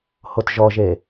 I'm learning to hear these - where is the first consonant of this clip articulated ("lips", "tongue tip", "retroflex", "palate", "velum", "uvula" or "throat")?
throat